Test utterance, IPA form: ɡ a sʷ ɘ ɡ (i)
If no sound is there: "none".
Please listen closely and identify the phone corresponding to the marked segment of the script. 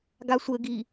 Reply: i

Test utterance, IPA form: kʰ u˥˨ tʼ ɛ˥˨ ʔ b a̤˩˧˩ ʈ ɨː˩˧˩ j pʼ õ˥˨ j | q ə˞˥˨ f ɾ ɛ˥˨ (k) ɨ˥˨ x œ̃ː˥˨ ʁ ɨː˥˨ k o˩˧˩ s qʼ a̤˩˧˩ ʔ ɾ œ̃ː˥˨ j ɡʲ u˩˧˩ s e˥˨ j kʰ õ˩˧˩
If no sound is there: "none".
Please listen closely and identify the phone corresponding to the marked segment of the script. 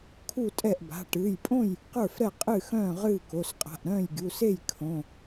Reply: qʼ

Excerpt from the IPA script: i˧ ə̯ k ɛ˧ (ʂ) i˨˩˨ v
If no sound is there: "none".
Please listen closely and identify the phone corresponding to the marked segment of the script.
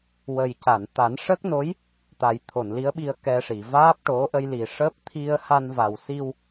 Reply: ʂ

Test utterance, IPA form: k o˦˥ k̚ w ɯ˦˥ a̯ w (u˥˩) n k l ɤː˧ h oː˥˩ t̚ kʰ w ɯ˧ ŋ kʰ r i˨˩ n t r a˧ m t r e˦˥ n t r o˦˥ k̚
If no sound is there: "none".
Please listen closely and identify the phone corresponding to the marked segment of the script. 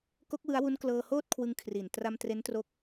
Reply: u˦˥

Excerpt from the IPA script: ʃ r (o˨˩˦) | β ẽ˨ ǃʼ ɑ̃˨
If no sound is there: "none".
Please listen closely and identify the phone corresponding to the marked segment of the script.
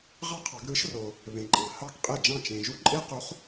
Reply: o˨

